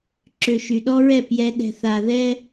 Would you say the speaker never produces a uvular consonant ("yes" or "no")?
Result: yes